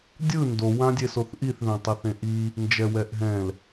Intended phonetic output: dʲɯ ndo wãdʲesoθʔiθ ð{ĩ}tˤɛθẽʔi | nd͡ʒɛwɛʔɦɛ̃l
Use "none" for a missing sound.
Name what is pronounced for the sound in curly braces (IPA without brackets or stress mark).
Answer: ẽ